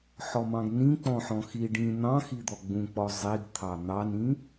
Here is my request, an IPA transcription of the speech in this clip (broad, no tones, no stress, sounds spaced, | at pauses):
ħ ɔ m ɑ̃ ɡ n ĩ k͡p ɔ̃ ħ ɔ̃ x i ɖ ĩ n̪ ɑ̃ x i d̪ ɔ ɡ͡b ũ k͡p ɔ zˤ i ɡ t̪ʰ ɑ n̪ ɑ n ĩ